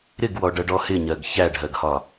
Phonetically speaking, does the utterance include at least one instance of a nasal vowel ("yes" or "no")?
no